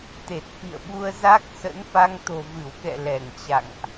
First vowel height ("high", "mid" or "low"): mid